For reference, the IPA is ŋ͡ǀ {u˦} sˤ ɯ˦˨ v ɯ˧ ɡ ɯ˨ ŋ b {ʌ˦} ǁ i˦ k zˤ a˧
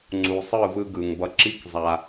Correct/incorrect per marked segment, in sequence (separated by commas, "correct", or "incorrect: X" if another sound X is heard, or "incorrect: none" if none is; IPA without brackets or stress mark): incorrect: u˨, incorrect: ʌ˧